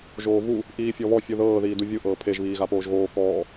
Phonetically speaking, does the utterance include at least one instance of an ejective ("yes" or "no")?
no